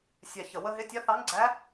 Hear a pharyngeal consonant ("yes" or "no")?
no